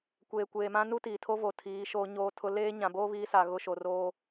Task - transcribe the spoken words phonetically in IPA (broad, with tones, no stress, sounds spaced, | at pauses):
kʷ eː˨ kʷ eː˨ m ã˦ n u˦ t iː˨ tʰ o˦ v o˨ tʰ iː˨˦ ʃ oː˦ ɲ oː˦ tʰ ʊ˦ l eː˦ ɲ ã˨ b oː˦ β iː˦ s a˨ ɣ ʊ˦ ʃ o˨ r oː˦